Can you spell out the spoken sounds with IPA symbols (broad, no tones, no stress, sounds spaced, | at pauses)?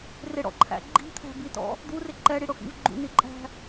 r ɪ ɽ ɔ̰ ǃʰ æ̰ ɡ͡ǃ i̤ t̪ʰ æ̤ b i t ɔ̰ | d̪ u r ɪ ǃ ɛ ɽ i ɽ ʊ x ḭ v ɡ͡ǃ ṵ n i ǃʼ æ̤